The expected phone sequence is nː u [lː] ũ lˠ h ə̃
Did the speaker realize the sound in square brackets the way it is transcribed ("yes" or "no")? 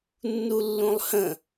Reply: yes